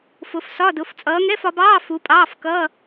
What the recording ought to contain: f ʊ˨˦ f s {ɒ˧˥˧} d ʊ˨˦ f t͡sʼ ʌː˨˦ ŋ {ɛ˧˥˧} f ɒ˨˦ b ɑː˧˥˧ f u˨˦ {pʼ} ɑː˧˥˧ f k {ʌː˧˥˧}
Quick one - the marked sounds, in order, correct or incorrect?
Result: correct, correct, correct, correct

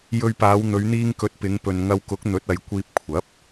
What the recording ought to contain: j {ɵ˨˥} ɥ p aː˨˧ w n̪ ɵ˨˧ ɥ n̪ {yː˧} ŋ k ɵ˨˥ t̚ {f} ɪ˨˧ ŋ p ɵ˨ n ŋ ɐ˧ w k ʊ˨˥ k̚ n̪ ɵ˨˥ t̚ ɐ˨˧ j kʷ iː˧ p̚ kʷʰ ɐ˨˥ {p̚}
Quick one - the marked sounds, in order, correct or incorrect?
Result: incorrect: ɵ˧, incorrect: iː˧, incorrect: p, correct

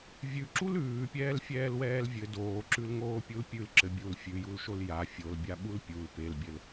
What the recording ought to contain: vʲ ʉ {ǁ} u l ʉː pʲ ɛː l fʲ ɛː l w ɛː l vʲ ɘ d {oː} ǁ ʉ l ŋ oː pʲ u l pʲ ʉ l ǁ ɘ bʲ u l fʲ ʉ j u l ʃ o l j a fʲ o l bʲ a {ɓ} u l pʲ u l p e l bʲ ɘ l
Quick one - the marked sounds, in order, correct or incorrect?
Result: correct, correct, correct

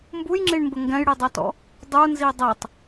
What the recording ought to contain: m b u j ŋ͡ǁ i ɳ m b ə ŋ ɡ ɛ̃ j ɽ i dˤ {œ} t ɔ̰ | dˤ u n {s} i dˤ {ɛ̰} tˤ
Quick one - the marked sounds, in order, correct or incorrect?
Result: correct, incorrect: z, incorrect: ɛ

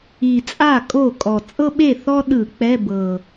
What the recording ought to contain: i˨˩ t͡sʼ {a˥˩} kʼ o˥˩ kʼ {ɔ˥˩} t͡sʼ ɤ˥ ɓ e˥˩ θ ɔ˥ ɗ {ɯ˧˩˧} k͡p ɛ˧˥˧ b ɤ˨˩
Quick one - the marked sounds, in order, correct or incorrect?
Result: correct, incorrect: ɔ˨˩, correct

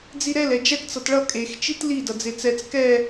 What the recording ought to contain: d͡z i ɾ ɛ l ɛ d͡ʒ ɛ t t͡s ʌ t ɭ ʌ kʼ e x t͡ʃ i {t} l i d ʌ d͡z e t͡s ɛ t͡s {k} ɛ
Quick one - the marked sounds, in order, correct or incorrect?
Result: correct, correct

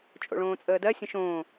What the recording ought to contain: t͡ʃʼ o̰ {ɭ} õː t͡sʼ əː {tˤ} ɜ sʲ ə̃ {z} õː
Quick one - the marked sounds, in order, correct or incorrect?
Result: correct, incorrect: d, incorrect: ʃ

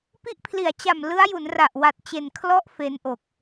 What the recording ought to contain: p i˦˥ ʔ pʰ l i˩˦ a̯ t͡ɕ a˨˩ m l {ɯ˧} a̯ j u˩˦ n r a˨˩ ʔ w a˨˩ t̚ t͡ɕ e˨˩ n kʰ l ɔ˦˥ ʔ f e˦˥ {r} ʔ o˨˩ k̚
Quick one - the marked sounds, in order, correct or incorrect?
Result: incorrect: ɯ˦˥, incorrect: n

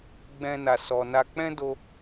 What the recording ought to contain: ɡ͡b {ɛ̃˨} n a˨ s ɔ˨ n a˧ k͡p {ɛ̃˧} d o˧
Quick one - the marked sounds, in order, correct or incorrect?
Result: incorrect: ɛ̃˧, incorrect: ɛ̃˦

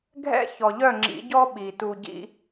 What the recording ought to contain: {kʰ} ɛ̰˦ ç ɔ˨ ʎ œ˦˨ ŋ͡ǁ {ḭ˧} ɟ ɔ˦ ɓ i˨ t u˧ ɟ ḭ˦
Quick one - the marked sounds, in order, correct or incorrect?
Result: incorrect: ɡʱ, incorrect: ḭ˨˦

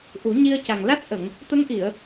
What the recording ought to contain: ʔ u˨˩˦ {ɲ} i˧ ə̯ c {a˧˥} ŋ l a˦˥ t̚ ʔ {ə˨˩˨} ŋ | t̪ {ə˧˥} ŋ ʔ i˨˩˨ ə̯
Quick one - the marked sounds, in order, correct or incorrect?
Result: correct, incorrect: a˨˩, correct, correct

